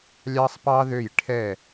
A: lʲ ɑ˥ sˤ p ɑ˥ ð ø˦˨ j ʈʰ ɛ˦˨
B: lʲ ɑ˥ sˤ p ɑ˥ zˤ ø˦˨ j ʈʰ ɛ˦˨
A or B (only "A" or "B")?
A